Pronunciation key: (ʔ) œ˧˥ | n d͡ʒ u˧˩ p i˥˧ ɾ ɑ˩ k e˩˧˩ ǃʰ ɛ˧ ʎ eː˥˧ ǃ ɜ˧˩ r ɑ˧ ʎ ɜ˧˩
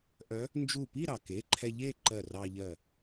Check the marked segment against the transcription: correct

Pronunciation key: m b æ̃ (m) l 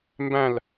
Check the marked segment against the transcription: incorrect: none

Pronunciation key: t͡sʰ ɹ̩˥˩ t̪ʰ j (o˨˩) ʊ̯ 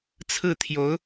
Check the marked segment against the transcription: incorrect: o˧˥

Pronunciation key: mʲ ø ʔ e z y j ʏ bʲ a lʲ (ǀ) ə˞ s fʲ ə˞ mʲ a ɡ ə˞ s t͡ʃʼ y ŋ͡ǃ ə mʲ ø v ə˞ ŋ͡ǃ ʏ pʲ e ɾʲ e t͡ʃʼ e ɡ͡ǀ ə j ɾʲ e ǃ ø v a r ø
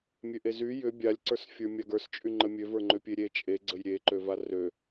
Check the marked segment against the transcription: correct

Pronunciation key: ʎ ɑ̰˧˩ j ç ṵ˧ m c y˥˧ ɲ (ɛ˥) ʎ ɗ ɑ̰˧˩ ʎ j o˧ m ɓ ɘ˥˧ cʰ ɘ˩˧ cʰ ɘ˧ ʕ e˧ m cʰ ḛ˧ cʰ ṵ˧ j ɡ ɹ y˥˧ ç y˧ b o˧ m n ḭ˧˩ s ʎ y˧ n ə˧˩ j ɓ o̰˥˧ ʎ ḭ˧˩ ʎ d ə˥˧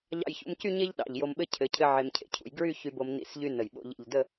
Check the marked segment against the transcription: incorrect: e˥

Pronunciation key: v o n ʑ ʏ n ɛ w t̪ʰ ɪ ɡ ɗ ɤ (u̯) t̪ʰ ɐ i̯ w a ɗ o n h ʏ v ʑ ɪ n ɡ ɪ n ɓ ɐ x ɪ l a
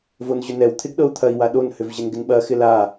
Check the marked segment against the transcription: correct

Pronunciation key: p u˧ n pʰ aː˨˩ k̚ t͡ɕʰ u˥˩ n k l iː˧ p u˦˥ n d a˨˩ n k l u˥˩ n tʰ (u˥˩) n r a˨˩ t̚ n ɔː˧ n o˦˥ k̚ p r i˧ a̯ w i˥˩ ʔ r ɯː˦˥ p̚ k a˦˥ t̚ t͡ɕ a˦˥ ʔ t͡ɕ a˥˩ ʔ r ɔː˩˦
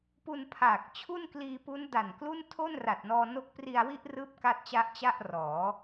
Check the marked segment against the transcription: incorrect: o˥˩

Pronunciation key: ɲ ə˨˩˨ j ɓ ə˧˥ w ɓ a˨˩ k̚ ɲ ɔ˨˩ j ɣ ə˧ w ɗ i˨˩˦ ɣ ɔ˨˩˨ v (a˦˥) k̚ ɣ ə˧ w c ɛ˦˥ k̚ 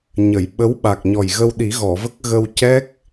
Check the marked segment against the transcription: incorrect: ə˦˥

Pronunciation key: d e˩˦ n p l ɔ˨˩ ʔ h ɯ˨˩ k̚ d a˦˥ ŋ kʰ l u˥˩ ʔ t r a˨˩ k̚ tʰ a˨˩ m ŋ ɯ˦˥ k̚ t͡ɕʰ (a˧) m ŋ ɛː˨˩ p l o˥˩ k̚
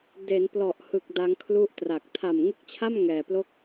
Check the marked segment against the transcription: incorrect: a˥˩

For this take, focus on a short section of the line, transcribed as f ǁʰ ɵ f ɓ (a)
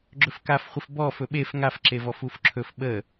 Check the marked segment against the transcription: incorrect: ə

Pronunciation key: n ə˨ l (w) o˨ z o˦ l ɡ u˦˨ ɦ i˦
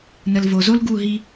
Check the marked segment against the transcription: incorrect: v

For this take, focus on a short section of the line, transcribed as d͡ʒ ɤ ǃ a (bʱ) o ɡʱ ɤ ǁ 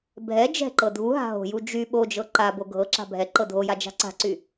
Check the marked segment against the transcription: incorrect: b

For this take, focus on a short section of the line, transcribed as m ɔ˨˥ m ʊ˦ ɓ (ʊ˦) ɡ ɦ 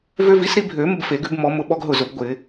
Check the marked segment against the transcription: incorrect: ɔ˦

